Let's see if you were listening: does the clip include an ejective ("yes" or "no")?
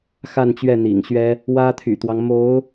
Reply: no